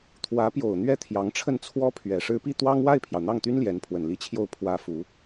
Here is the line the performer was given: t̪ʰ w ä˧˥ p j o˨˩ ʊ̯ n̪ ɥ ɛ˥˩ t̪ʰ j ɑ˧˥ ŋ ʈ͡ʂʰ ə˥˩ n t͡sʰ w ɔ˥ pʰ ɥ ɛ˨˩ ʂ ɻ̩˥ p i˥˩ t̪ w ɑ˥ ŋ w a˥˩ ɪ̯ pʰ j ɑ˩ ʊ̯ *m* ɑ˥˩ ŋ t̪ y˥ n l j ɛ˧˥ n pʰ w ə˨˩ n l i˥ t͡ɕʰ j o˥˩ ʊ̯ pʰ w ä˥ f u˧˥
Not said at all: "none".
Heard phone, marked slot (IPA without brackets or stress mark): n̪